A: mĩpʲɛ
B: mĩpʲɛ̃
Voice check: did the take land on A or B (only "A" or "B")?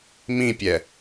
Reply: A